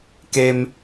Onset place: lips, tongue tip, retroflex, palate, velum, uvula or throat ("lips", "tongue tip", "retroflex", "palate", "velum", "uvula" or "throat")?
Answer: velum